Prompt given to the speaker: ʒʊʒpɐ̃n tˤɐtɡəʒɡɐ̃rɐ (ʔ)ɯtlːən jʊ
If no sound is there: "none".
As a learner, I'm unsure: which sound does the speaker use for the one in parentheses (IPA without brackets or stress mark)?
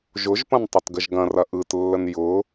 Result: ʔ